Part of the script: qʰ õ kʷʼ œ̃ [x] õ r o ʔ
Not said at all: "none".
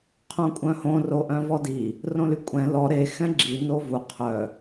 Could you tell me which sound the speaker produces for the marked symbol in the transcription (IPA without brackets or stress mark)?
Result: h